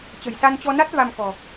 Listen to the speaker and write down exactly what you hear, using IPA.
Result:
t͡ɕ ə̤˨˩ j s a˧ n t͡ɕ ɔ˧ n a˦˥ t̚ v a˧ m k ɔ̤˨˩

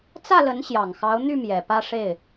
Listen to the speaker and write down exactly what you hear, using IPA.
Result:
t͡s ä˥˩ l ə˧˥ n ɕ j ɑ˨˩ ŋ x ɑ˧˥ ʊ̯ n̪ y˥˩ m j ɛ˨˩ p ä˥˧ ʂ e˥˩ ɪ̯

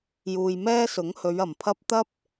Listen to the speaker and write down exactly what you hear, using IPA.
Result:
j uː˧ j m ɛː˥ s ʊ˨˥ ŋ h ɵ˨˧ ɥ ɐ˨˩ m pʰ ɐ˥ p̚ t̪ ɐ˥ p̚

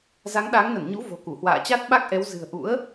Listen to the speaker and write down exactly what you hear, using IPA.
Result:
z a˨˦ ŋ ɗ a˨˦ ŋ n ə˧˩ n ɲ ṵ˧˥ v o̤˨˩ k u˧˩ h w a̰ː˧˨ t͡ɕ a˦˥ t̚ ɓ a˦˥ k̚ ʔ ɛ˨˦ w z ɨ̤˨˩ ə̯ ʔ ṵ˧˥ ə̯

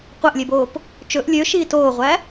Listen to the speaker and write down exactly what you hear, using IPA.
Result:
qʷ æ ʔ lʲ e b oː p | t͡ʃ ɵ ʔ lʲ ø ʃ iː t oː ʁʷ æ

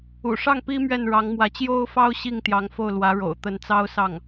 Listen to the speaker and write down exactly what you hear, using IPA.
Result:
ṵ˨˩ ʂ ɑ˥˩ ŋ p i˥ m ɥ ɛ˥˩ n ɻ ɑ˧˥ ŋ m w ä˧˥ t͡ɕ j o˥ ʊ̯ f ɑ˥ ʊ̯ ɕ i˥˩ ŋ t̪ j ɑ˧˥ ŋ f o˥˩ ʊ̯ l w ä˧˥ ɻ o̰˨˩ ʊ̯ t̪ ə˧˥ n t͡s ɑ˥ ʊ̯ s ɑ˥˩ ŋ

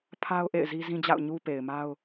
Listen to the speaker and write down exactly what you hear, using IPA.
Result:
pʰ a˦ ʊ̯ ʔ ḛ˦˨ ɪ̯ z i˦ z ĩ˦ d͡ʑ a̰˦˨ ʊ̯ ɲ u˦ p e˨ ɪ̯ m a˦ ʊ̯

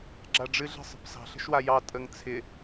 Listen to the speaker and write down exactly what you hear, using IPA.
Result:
ɡ͡ǁ a ɖ͡ʐ ɨ ɮ ə̤ sˤ ə̤ p s ɑ̤ ɬ ə̤ ʃ w a j ɑ tʼ ə ŋ t͡sʰ ɪ

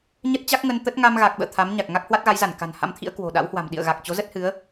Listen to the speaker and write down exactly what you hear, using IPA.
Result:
ɲ ə˦˥ t̚ t͡ɕ a˦˥ k̚ ŋ ə˧ n t̪ ə˦˥ t̚ ŋ a˧ m ɣ a˨˩ k̚ ɓ ə̰ː˧˨ t̪ʰ a˨˦ m ɲ a˨˩ k̚ ŋ a˦˥ k̚ h w a˦˥ t̚ ɣ a˨˦ j z a˧˩ n k a̤˨˩ n h a̰˧˥ m t̪ʰ ḭ˧˥ ə̯ k w o̤˨˩ ɗ a̰˧˥ w h w a̤˨˩ m ɗ ḭ˧˨ ə̯ ɣ a˨˩ k̚ t͡ɕ o˨˦ z ə˦˥ t̚ h ɨ˨˦ ə̯

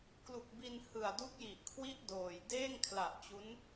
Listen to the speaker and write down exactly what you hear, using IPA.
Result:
k l u˨˩ k̚ b i˧ n h ɯ˨˩ a̯ d u˦˥ k̚ j i˨˩ ʔ kʰ w i˥˩ ʔ d oː˨˩ j d eː˥˩ ŋ kʰ l a˨˩ ʔ t͡ɕ u˦˥ n

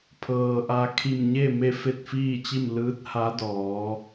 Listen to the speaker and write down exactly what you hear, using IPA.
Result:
pʰ ɤː˩ ʔ a˧ kʰ i˧˩ m ɲ e˥˨ m e˥˨ f e˥˨ t̚ f iː˥˨ t͡ɕ i˥˨ m l ɯː˧˥ t̚ h a˧˥ d ɔː˩˧

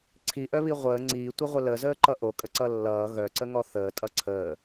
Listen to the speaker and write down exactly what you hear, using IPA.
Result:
ǀʰ i ʔ œ β i ʁʷ əː ŋ͡ǀ iː tʷ ə ʁʷ ə l ə z əː ǃ ʌ ʔ o kʼ ə ǀ ʌ lː ʌː ɣ œ ǀ ə ŋ ɔ θ əː tʼ ʌ ǀʰ əː

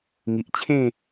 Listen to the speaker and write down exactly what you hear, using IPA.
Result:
ŋ i˨ ʔ t͡ɕʰ ẽ˥˧

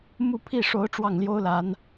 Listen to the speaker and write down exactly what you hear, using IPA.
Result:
m u˥˧ pʰ i˥˩ ʂ o˧˥ ʊ̯ ʈ͡ʂ w ɑ˥˩ ŋ l j o˥ ʊ̯ l a˧˥ n

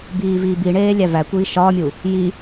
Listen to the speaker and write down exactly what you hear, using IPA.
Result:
b iː v iː b i ɳ eː lʲ æ v æ kʷ iː ʃ ɒː mʲ u | j i

